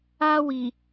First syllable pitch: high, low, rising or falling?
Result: high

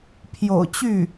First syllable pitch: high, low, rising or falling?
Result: low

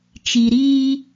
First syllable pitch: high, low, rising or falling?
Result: low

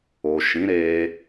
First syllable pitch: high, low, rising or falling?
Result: low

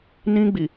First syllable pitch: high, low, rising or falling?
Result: high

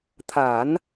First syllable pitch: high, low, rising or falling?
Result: low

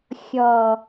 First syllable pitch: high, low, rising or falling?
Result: low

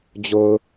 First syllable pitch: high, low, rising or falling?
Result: low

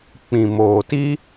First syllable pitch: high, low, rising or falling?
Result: low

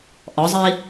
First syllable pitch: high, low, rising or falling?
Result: rising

